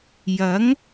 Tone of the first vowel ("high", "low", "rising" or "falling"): rising